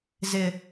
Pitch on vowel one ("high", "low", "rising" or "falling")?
low